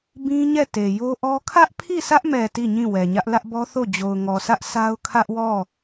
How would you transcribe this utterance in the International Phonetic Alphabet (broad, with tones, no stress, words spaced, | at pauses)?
bĩ˦ ɲɛ˦˨te˨ jo˦ʔɔ˦ kʰä˦ʔpʰi˦˨sä˦ʔmɛ˨ ti˦˨ɲĩ˦˨wɛ˨ɲä˦ʔ lä˦ʔbɔ˦θo˦˨ d͡ʑo˨ʊ̯ŋɔ˨sʰä˦ʔ sa˦ʊ̯ kʰä˦ʔwɔ˦˨